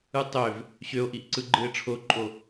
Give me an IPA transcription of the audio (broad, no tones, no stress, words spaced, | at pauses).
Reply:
ɯtˤøv | ɕøo̯ʔiʔǀɯ ɡ͡ǃɯe̯ʈ͡ʂʰoǃʼo